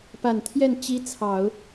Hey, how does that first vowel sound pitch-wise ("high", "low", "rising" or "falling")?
low